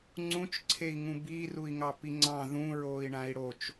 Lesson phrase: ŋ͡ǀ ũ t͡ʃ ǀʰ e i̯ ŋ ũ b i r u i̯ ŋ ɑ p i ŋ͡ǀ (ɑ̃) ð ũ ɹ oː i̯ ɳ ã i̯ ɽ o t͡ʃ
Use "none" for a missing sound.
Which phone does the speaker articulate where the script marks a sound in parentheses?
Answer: ɑ̃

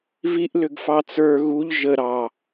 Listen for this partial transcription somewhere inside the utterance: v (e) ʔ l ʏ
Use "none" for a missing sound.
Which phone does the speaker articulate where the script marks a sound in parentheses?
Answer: i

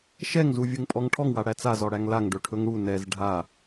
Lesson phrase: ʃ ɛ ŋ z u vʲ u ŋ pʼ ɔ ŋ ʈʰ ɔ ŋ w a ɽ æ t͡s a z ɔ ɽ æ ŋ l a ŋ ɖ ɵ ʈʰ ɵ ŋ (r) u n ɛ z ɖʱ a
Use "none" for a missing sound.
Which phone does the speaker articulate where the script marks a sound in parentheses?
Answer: ɽ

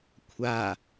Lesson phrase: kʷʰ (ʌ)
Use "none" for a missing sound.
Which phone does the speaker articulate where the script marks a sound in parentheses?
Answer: a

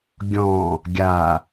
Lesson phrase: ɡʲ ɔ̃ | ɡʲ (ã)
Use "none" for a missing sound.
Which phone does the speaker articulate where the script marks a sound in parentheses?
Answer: a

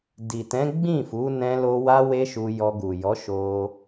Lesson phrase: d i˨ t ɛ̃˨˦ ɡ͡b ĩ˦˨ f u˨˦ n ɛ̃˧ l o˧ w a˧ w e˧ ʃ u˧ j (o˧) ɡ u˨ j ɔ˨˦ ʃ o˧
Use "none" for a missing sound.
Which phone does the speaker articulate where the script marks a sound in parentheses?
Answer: ɔ˧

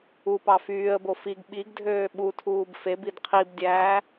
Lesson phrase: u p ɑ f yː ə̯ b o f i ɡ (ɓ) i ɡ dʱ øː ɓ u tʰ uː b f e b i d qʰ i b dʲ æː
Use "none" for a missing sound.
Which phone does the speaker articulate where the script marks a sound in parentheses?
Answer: ɓ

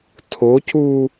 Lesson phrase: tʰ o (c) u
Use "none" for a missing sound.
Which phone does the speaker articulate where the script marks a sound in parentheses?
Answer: c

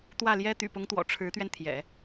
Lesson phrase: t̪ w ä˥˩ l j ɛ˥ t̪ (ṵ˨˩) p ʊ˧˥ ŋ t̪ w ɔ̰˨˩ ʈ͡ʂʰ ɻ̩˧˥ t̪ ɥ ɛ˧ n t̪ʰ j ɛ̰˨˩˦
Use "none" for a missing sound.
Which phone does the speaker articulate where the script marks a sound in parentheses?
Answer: y̰˨˩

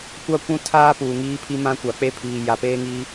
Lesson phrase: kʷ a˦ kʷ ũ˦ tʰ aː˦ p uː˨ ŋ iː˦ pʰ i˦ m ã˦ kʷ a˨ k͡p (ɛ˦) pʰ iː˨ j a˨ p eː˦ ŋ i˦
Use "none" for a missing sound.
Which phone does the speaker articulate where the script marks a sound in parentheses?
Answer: e˦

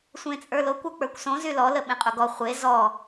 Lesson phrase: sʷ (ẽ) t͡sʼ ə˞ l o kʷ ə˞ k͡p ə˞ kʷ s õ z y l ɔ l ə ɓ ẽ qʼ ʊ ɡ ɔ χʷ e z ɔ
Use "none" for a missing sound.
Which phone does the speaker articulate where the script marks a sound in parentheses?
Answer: ẽ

